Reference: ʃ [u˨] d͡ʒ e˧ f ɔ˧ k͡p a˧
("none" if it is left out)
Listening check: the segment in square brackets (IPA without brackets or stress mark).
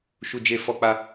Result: u˨